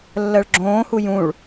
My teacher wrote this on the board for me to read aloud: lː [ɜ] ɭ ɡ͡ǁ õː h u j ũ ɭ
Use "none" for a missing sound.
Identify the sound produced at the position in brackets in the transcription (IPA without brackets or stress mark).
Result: ɜ